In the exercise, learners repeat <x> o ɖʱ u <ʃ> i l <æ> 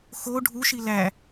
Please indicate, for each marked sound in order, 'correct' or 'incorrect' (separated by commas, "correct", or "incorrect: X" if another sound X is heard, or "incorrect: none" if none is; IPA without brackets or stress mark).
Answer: correct, correct, correct